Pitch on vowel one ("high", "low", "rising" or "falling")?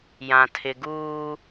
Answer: low